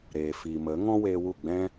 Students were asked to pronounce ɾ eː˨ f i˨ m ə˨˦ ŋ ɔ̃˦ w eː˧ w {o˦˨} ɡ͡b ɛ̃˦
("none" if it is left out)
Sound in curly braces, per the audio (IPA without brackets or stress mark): u˦˨